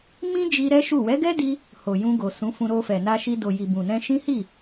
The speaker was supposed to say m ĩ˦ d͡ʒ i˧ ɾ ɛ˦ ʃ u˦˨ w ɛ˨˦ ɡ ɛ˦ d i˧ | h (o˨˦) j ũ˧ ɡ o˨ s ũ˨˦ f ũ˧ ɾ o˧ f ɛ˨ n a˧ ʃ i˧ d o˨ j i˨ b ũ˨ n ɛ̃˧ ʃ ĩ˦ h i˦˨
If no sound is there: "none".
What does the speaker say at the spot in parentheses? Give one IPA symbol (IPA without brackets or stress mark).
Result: o˨